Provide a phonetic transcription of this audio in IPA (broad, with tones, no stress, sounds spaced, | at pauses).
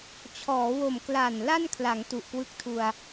t͡ɕʰ ɔː˩˦ w o˨˩ m k l a˨˩ n l a˥˩ n kʰ l a˩˦ ŋ t u˨˩ ʔ k w ɯ˦˥ k̚ tʰ u˧ a̯